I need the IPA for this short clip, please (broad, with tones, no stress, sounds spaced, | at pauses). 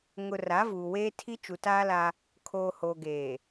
ŋ ʊ˨ r a˨˦ v uː˨ w eː˦ tʰ i˦ t͡ʃ u˨ t aː˦ l a˦ | kʰ oː˨ h oː˨ ɡ eː˨